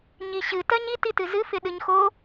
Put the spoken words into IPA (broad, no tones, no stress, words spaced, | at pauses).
ɲiɕɨ tɜɲit itɨzɨ fɪɗɨɲxo